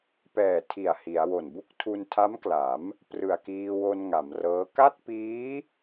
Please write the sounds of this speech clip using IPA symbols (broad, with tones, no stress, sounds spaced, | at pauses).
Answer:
p ɛː˨˩ tʰ i˨˩ a̯ h i˩˦ a̯ w o˨˩ n b u˥˩ k̚ tʰ u˧ n tʰ a˦˥ m k l a˩˦ m | p r ɯ˨˩ a̯ k iː˧ w o˧ n ŋ a˩˦ m r ɤː˦˥ k a˥˩ t̚ p iː˦˥